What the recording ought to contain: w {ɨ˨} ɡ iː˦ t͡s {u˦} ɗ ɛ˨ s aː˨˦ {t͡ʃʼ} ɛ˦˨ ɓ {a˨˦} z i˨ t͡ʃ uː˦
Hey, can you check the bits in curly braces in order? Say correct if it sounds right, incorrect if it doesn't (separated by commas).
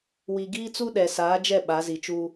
incorrect, correct, incorrect, correct